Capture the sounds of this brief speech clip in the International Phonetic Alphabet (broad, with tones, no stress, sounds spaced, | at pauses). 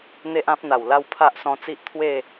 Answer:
n̪ e˦ ʔ ã˦ p̚ n̪ a˨˩ w l a˥˧ w pʰ a˦ ʔ s ɔ̃˧ t͡s i˦ ʔ t̪ʰ w e˥˧